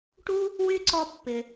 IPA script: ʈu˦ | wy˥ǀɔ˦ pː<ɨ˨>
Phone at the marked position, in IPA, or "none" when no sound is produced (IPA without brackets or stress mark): ɪ˨